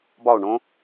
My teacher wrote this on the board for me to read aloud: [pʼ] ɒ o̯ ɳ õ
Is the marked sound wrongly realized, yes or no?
yes